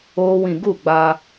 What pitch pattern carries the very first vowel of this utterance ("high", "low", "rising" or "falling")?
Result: high